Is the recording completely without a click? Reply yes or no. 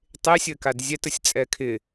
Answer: yes